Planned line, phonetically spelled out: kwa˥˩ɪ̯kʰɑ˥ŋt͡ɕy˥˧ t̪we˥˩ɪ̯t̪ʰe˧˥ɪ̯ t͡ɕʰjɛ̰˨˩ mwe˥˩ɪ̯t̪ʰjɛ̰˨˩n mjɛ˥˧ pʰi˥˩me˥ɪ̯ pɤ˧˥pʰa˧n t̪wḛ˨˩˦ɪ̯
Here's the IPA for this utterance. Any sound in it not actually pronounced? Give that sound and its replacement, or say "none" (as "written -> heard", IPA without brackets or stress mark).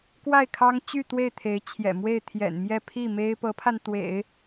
none